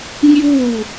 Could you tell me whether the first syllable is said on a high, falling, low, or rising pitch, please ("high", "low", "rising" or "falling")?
falling